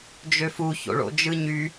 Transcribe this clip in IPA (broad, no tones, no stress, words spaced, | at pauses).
d͡ʒøfu ço̰ɭo̰d͡ʒɯɲy